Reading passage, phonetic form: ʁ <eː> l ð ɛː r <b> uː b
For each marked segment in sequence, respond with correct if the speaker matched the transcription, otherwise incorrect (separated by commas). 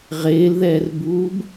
correct, correct